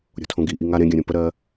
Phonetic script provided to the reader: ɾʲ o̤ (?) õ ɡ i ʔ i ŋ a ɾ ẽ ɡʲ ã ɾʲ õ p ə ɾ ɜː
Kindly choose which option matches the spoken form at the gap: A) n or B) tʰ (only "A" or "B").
B